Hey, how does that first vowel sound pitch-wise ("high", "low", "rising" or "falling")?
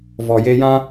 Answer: low